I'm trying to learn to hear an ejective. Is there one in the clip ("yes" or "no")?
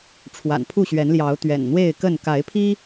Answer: no